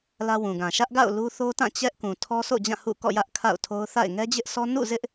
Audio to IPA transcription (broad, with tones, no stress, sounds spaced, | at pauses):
l ä˦ w ũ˨ ɡ ã˨ ʃ ä˦ ʔ ɡ a̰˦˨ ʊ̯ l u˦ θ o˦ t ã˦˨ t͡ɕ ɛ˦ ʔ k ũ˨ tʰ ɔ˦ s o̰˦˨ d͡ʑ ã˦˨ h ṵ˦˨ k ɔ̰˦˨ j ä˦ ʔ kʰ a̰˦˨ ʊ̯ tʰ o˦ ʊ̯ θ a̰˦˨ ɪ̯ ŋ ɛ˦ d͡ʑ ɪ˦ ʔ sʰ ɔ˦ n ṵ˦˨ z ɪ˦ ʔ